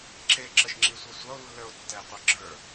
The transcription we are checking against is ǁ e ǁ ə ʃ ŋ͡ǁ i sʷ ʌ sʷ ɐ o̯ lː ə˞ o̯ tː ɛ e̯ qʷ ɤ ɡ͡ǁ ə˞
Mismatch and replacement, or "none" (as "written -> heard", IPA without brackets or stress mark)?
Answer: none